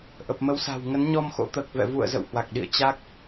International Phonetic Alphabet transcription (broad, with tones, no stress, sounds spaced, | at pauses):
ʔ ə˨˩ p̚ m ə˨˦ w s a̤˨˩ w ŋ ə˨˦ n ɲ ɔ˧ m x o̰˧˥ t̪ əː˨˩ k̚ v ɛ̰˧˨ v ṵ˧˨ ə̯ z ə̰˧˨ w h w a˨˩ k̚ ɗ ḭ˧˨ ə̯ t͡ɕ a˦˥ k̚